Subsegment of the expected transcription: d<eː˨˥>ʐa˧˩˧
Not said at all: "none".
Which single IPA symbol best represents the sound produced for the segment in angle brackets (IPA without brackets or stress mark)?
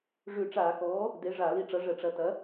e˨˥